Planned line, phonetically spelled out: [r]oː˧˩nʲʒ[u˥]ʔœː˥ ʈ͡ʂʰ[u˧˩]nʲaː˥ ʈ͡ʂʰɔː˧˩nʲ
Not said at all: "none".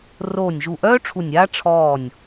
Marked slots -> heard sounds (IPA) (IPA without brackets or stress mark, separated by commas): r, u˧˩, u˧˩